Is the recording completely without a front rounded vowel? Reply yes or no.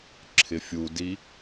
yes